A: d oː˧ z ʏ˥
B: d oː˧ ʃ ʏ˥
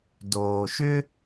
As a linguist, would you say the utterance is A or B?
B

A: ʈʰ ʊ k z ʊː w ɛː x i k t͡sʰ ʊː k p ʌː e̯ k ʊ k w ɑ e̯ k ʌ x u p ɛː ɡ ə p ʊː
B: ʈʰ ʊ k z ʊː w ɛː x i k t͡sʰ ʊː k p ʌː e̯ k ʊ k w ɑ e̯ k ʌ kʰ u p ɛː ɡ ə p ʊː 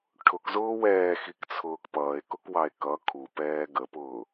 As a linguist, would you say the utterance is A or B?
B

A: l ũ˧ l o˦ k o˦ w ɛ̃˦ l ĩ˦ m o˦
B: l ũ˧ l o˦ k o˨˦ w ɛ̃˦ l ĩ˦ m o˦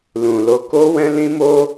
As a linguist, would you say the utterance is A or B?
A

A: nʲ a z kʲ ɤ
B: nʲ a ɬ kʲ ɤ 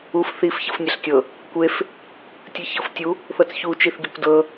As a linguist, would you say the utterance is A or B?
B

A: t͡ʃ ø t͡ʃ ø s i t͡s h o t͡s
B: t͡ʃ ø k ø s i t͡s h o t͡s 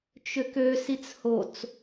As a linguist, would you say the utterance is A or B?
B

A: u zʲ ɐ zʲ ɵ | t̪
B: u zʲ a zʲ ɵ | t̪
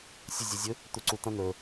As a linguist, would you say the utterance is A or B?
A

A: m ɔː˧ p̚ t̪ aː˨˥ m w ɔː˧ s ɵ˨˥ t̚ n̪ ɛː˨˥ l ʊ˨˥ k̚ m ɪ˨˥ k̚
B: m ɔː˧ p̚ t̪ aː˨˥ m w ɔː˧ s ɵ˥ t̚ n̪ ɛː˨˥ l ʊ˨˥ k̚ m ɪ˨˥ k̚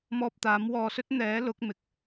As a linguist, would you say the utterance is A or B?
B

